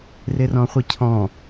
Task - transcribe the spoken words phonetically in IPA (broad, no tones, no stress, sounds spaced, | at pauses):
r ɪ r ɔ̃ χʷ i cʰ ɔ̃